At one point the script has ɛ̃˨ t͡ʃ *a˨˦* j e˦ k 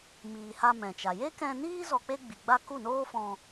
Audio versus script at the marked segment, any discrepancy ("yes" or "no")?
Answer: yes